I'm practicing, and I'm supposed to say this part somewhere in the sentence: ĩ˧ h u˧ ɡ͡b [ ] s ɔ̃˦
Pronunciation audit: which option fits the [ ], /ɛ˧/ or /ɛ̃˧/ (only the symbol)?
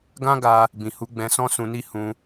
ɛ̃˧